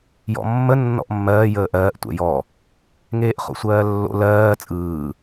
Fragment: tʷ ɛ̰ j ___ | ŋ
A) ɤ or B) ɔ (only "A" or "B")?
B